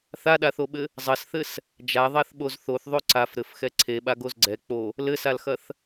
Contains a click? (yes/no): yes